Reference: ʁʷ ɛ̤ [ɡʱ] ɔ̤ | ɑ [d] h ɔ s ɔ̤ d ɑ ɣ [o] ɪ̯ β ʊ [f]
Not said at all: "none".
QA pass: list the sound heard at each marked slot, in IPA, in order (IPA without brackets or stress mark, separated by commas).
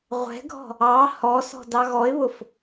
ɡʱ, none, ɔ, f